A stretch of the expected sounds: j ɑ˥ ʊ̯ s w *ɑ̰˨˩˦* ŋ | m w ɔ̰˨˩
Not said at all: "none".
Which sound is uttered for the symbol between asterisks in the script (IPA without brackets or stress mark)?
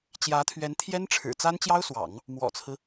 ɑ̰˨˩˦